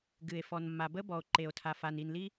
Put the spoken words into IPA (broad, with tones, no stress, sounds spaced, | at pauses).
ɡ ɨ˩ e̯ f ɔ˩ n mː a˩ b ə˥ b ɔ˩ o̯ ǃ e˩ o̯ tʰ a˩ f a˩ n i˩ n l i˥